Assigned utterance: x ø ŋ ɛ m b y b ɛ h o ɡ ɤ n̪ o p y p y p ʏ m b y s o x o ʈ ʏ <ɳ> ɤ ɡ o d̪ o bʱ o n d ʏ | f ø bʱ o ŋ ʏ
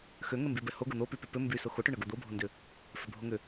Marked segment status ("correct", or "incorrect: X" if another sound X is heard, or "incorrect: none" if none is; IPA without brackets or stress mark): correct